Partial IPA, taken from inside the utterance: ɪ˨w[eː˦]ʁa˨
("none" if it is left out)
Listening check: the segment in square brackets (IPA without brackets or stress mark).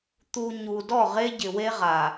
e˦